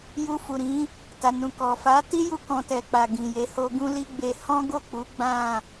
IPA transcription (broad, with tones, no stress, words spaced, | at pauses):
ju˧fu˨ɾĩ˨˦ | ta˨nũ˨kɔ˨ fa˨˦ti˦ju˧ kɔ̃˧tɛ˨k͡pa˨ ɡĩ˨je˨˦ho˦ ɡũ˦li˦ɡ͡be˧ hɔ̃˦ɡo˦˨ k͡pu˨˦ ɡ͡bã˦˨